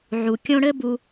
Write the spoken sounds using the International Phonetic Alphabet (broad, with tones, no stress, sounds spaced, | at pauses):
ʕ u˩ kʲ õ˦ ɽ ɘ˥ b u˨